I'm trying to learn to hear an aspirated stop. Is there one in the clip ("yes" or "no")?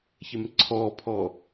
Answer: yes